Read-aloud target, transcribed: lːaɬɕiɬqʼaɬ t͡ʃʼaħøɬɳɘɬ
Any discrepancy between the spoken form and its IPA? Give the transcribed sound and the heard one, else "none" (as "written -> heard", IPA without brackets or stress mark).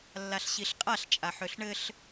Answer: none